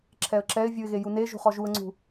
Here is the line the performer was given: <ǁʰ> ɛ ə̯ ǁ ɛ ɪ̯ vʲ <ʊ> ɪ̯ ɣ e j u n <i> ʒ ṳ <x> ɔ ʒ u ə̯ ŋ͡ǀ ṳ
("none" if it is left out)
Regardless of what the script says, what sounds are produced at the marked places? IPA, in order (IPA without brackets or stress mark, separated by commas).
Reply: ǁʰ, u, e, χ